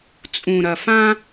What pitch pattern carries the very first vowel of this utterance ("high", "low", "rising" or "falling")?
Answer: low